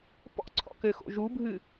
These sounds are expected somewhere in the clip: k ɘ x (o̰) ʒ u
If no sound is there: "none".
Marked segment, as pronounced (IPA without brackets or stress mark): o̰